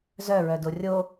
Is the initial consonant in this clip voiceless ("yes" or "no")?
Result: no